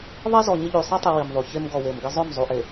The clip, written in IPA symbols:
ðˤ ɐ˦ z ɔ˨ ɲ ɪ˦ ʎ y˨ sˤ i˦ tˤ i˨ w i˨ m ðˤ u˨ ç e˦ m ɡ ɔ˨ w e˨ m ɡ ɪ˦ zˤ ø˦˨ m zˤ u˨ ʔ e˨

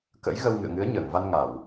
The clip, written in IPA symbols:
k ə̰˧˥ j ɣ ə˧ w ŋ ɨ̰˧˨ ə̯ ŋ ɨ˨˦ ə̯ ɲ əː˧˩ ŋ v a˧ n ŋ a˧˩˨ w

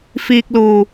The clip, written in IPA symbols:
f iː˨ k̚ l uː˨˩

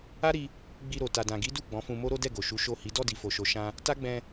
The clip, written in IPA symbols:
a˦ ɾ i˧ | ɡ͡b i˧ ɾ o˨ t a˨ d ã˨ ɡ i˨˦ d u˦˨ ɡ͡b ɔ̃˨˦ f ũ˧ m o˦ ɾ o˦ d ɛ˦˨ ɡ o˨ ʃ u˨˦ ʃ o˦˨ h i˨˦ d ɔ˦˨ d i˨ f o˨ ʃ o˨ ʃ ã˧ | t a˦ ɡ͡b ɛ̃˧

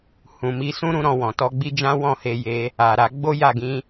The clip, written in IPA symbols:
h ũ˨ m i˨˦ s ũ˦ ɾ ũ˦ ɾ ɔ̃˧ w ɔ̃˨ t ɔ˧ ɡ͡b i˦ d͡ʒ ã˦ w ɔ̃˦˨ h e˧ j e˧ | a˨ ɾ a˧ ɡ͡b o˦ j a˦˨ ɡ ĩ˨˦

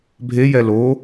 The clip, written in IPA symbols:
bʱ e j ɛ l o

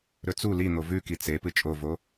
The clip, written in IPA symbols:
ɾ ɵ t͡s u l i n̪ o v ʉ k i t͡s e p ɨ t͡ʃʼ o v o

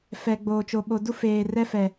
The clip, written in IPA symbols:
f ɛ˨ ɡ͡b oː˨ t͡ʃ o˨ ɓ o˨ d u˦ f eː˨ r ɛ˦ f ɛ˨

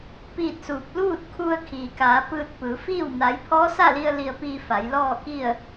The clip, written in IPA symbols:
p iː˥˨ t̚ s uː˧ p̚ l uː˥˨ t̚ kʰ u˧ ə̯ kʰ i˩ k aː˩˧ p ɯː˧ t̚ p ɯː˩˧ f iː˥˨ w n a˧˥ j pʰ ɔː˧˥ s a˥˨ l i˧ ə̯ l i˧ ə̯ p iː˧ f a˩˧ j l ɔː˥˨ k i˥˨ ə̯

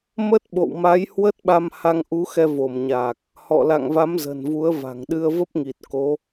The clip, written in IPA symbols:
m ə˦˥ t̚ ɓ o̰˧˨ w m a˨˦ j h w ə˦˥ t̚ ɓ a˧ m h a˧ ŋ ʔ u˨˦ x ɛ˧ v o˧˩ m ɲ aː˨˩ k̚ | h ɔ̰˧˨ l a̰˧˨ ŋ v a˨˦ m z ə̤˨˩ n v u˨˦ ə̯ v a̤˨˩ ŋ ɗ ɨ˧ ə̯ v ə˦˥ p̚ ŋ i˨˩ t̚ k o˨˦

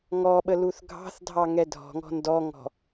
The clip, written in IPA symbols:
ŋ ɔ ɓ ə l u θ ɡʱ ɑ̤ θ dʱ ɑ ŋ ɛ dʱ ɔ̤ ŋ ɔ̤ n d ɔ ŋ ɔ̤

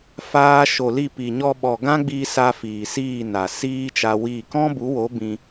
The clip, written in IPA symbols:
f aː˧ ʃ o˨ l i˦˨ p i˨ ɲ ɔ˧ ɓ ɔ˨ ɡ ã˦ ɡ͡b iː˧ s a˧ f iː˨ s iː˦˨ n a˨ s iː˦ t͡ʃ a˧ w iː˦˨ k ɔ̃˦ b u˨˦ w o˨˦ b ĩ˧

